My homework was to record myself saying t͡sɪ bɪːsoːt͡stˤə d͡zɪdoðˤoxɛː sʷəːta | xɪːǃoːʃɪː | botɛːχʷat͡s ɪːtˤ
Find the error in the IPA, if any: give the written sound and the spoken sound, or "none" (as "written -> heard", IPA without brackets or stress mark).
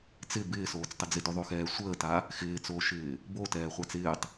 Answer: ǃ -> t͡s